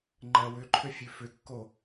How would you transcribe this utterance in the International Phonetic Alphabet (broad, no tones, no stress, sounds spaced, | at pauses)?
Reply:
ŋ͡ǃ ɜ w ʏ ǃʰ ø fʲ ʉ f ʏ kː o